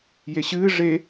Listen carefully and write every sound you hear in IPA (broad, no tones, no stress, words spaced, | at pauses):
jeɕɨː ʐe